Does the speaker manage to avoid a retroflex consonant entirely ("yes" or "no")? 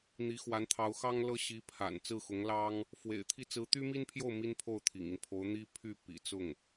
yes